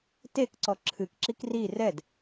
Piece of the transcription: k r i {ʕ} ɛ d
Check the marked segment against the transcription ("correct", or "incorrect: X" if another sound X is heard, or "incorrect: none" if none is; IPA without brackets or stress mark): incorrect: r